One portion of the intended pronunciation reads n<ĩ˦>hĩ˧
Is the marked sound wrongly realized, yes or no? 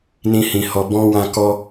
no